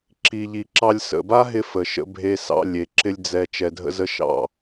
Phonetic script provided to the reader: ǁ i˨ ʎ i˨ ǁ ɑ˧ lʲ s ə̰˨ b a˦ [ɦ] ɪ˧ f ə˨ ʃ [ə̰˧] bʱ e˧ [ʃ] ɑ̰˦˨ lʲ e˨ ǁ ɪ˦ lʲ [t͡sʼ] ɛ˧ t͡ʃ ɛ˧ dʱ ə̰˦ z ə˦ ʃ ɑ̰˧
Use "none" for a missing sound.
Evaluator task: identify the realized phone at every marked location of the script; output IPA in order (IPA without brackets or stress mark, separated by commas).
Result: ɦ, ə̰˧, s, d͡z